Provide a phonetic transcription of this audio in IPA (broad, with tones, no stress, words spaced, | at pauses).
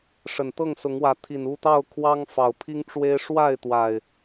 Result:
ʂə˨˩nt̪ɤ˥˨ŋsʊ˨˦ŋwä˨˦ t̪ʰi˨˩nu˥˨t̪ɑ˥˨ʊ̯ kʰwɑ˦ŋfɑ˨˩ʊ̯pʰi˦ŋʈ͡ʂwe˦ɪ̯ ʂwa˥˨ɪ̯t̪wa˨˩ɪ̯